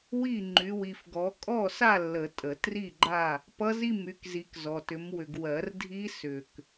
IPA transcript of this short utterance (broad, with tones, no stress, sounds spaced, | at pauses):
w i˥˨ ŋ͡ǃ y˨˦ w i˨ f ɡ ɔ˨˦ kʼ ɔ˥˨ s a˥˨ lː ə˨˩˦ tʼ ə˨˩˦ t r i˥˨ ɡ͡ǃ a˥˨ | p ʌ˦˥ z i˥˨ m y˨˦ k z i˨˦ k z ɔ˨ t ʏ˨˦ m w ʏ˨ ɡ w ɜ˨˩˦ r dʱ i˦˥ s ʏ˨ k